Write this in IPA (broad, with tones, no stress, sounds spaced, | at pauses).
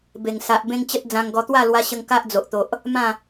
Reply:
b e˨˩ ŋ s a˨ ʔ b ẽ˦ ŋ t͡ɕ ə˦ t̚ d͡z ã˧ ŋ ɡ ɔ˧ t̪ w a˥˧ l w a˧ ɕ ə˧ ŋ k a˦ ʔ d͡z o˨ ʔ t̪ o˨ ʔ | m ã˥˧